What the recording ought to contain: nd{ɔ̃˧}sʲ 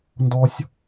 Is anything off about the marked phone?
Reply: yes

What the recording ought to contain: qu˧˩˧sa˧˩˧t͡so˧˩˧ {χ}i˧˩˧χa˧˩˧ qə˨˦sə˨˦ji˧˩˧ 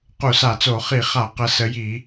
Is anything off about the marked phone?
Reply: no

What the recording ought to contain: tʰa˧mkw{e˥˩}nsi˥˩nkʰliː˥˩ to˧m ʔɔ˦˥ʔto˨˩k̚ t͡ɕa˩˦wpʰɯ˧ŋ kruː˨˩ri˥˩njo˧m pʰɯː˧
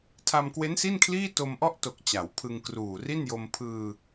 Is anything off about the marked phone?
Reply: yes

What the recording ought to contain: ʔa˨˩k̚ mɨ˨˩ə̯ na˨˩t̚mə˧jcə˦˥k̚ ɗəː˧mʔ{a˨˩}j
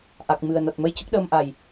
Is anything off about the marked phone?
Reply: no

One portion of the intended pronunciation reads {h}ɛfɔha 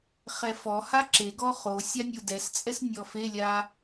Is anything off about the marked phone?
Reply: yes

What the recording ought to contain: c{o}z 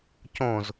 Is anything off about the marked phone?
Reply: yes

